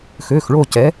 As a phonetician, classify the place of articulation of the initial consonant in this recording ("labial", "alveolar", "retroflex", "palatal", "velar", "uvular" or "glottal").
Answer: velar